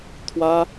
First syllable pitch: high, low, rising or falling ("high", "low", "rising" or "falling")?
high